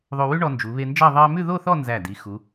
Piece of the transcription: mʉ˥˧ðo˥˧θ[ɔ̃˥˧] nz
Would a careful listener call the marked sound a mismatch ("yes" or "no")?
yes